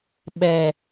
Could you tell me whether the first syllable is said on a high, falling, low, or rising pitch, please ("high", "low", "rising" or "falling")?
low